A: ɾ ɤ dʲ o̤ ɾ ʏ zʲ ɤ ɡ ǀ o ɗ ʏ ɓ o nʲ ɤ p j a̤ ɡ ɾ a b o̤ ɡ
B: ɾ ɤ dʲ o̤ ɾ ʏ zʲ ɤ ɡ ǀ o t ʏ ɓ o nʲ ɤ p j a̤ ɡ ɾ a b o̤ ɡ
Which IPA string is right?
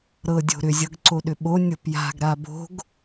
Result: A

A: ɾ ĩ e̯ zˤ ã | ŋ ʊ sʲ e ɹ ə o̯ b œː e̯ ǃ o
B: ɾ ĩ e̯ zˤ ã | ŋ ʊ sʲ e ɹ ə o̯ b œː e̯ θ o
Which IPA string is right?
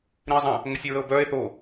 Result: B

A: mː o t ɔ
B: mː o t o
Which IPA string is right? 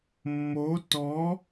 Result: A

